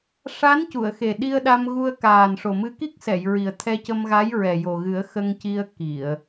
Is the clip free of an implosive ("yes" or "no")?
no